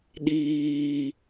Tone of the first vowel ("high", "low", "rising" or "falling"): high